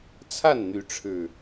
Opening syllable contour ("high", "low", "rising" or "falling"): falling